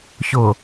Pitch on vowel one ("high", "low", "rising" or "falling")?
low